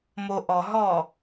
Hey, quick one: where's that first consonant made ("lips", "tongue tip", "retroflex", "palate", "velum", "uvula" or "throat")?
lips